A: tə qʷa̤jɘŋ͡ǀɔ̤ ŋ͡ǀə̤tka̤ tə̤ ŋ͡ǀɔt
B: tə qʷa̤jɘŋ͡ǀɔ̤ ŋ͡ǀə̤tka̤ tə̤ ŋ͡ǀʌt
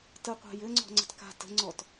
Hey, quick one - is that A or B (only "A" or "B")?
A